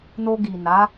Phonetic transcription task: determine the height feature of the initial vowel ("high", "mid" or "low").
mid